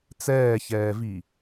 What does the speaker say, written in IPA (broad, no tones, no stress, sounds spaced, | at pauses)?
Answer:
t͡s ɛː ç ɛː v i